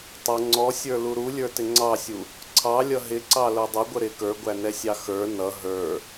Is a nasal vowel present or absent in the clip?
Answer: absent